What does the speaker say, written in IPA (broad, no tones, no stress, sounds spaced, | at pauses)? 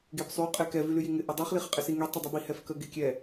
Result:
ɡ e b sˤ y qʼ e k ɛ v y l y j i ŋ ɪ ʔ ɐ dˤ y χ l i χ ɪ qʼ ɪ s i ŋ i tˤ ɪ dˤ y b i h ɛ f k ə ɡ e kʲ ɛ